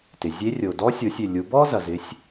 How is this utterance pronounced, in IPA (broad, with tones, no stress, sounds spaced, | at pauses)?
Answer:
t ɪ˩ zʲ e˧˥ rʲ o˩ d ɔ˧˥ sʲ o˩˧ sʲ ʏ˩ lʲ u˩˧ b ɔ˥ z ɐ˩ z ɪ˩˧ sʲ